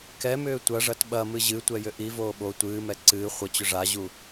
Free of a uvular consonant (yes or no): no